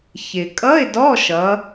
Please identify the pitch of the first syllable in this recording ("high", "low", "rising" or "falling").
low